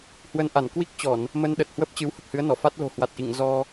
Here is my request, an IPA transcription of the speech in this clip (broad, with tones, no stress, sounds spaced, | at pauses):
h w ə˧ n ʔ a˧˩ n k w i˦˥ k̚ t͡ɕ ɔ˧˩˨ n | m ə˧ n ɗ ə˨˩ t̚ h w ə˦˥ p̚ t͡ɕ ɨ˨˦ w h ə˨˩ p̚ h ɨ˨˦ ə̯ n ɔ˧˩ f a˦˥ t̚ l o̤˨˩ h w a˨˩ t̚ ʔ ḭ˧˨ ŋ z ɔ˧